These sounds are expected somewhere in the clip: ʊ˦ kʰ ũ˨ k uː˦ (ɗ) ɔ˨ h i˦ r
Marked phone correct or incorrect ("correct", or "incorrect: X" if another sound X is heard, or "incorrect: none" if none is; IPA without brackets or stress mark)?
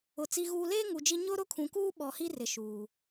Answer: incorrect: ɓ